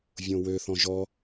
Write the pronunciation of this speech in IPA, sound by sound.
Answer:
vʲ õ w ø θ ɔ̃ ʒ ɔ

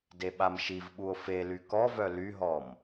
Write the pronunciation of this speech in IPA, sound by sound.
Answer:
d e ɓ a m ʃ i v ɓ u o̯ f e l y k ɔ v œ l y ɦ ɔ m

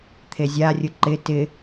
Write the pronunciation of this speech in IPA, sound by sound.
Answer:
t̪ʰ e zʲ a rʲ ʊ ǃ ɪ t ɪ

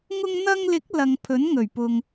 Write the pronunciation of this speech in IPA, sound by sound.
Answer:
ŋ ʊ˧ ŋ n̪ ɐ˧ ŋ l ɪ˨˥ k̚ l ɐ˨ ŋ pʰ ɵ˨˥ n ŋ ɵ˨˩ ɥ p ʊ˨ ŋ

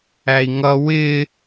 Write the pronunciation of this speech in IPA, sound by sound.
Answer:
æ i̯ ŋ ʌ w ɪ

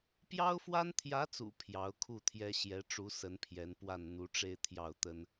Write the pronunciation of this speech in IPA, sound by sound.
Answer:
p j ɑ˥ ʊ̯ f w a˥ n t̪ʰ j ä˧˥ t͡s ṵ˨˩ pʰ j ɑ˧˥ ʊ̯ kʰ u˥˩ t̪ʰ j ɛ˥ ɕ j ɛ˧˥ ʈ͡ʂ u˧˥ s ə˧˥ n pʰ j ɛ˧˥ n p w a˥˩ n n̪ u˧˥ ʈ͡ʂ e˥˧ ɪ̯ t̪ʰ j ɑ˥˩ ʊ̯ t̪ ə˥ n

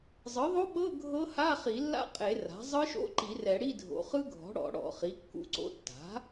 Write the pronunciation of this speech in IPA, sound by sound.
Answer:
zˤ ɯ˩˥ ðˤ o˦˥ ɓ ɤ˧˥˧ ɡʱ ɤ˦˥ h a˧˥˧ χ i˨˩˦ lː a̰˦˥ qʼ e˨˩˦ r a̤˩˥ zˤ ɯ˦˥ ʃ o̰˧˥˧ ǃ i˨˩˦ r ɛ˨˩˦ ɽ i˧˥˧ dʱ o̰˩˥ χ ɯ˦˥ ɡʱ ɔ̤˩˥ ɽ ɔ̰˨˩˦ ɽ ɔ̰˨˩˦ χ i˩˥ kː ṵ˧˥˧ ǀ o̰˧˥˧ tː a̤˩˥

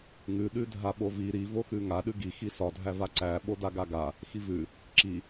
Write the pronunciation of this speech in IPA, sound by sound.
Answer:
ŋ ʉ ɗ ʉ dʱ a ɓ o v i ɾ i v o x ʉ ŋ a ɗ ʉ ɡ i x i s ɒ dʱ æ v a ǀ æ ɓ o d a ɡ a ɡ a | x i v ʉ | ǁ i

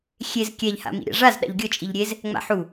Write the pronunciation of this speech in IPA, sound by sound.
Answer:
xʲ e z kʲ ɛ ʎ h a̰ m ḭ ɾʲ a̰ ʐ a z ɗ a̰ ʎ ɡʲ ɤ t͡ʃʼ i ʎ ɾʲ e z | ŋ͡m a̰ ħ u

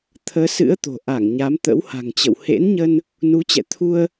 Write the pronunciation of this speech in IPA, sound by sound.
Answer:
t̪ʰ əː˨˦ s ɨ̰˧˥ ə̯ t̪ o̤˨˩ ʔ a˧˩ ŋ ɲ a˨˦ m t̪ ə̰˧˥ w h a̤˨˩ ŋ t͡ɕ ə̰˧˨ w h ḛ˧˥ n ɲ ə˧ n | n u˨˦ t͡ɕ ɛ̰˧˨ t̪ʰ u˧ ə̯

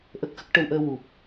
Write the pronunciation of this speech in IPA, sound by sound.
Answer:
ʔ ə˦˥ k̚ x ə˦˥ k̚ ʈ ə˧ w ʔ əː˧ w u˨˩ p̚

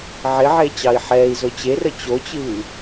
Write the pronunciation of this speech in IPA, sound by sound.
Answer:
ʕ ɪ ʕ e t͡ɕ ɑ i̯ ħ ɛː i̯ z o t͡ɕ e r ə t͡ɕ o t͡ɕ ɨː

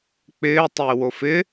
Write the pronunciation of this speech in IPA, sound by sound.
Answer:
k͡p ɪː tˤ ɪː w o f ɪ

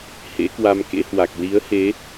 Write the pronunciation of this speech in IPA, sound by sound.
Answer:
h ḛ˧˥ k w a˧ m k ḛ˧˥ h w a˨˩ k̚ l i˨˦ ə̯ h e˨˦

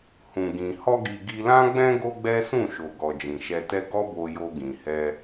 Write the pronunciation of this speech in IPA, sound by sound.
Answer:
h ũ˨ ɡ ĩ˨ h ɔ˧ ɡ i˨ ɡ i˧ l ã˦ ɡ͡b ɛ̃˦ ɡ o˦ ɡ͡b ɛ˦ s ũ˦˨ ʃ o˨ ɡ ɔ˨ d͡ʒ ĩ˨ ʃ ɛ˧ t ɛ˦ ɡ ɔ˦ b o˧ j o˧ ɡ ĩ˨ h ɛ˧

